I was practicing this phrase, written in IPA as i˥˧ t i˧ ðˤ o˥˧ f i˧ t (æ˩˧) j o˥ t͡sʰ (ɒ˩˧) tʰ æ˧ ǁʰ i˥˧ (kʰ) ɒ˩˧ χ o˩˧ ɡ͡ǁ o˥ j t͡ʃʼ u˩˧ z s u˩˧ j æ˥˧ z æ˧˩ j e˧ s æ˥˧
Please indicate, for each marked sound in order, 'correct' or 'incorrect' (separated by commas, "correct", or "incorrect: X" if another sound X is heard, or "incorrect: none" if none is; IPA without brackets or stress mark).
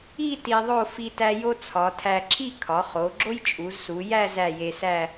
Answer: incorrect: æ˧, correct, correct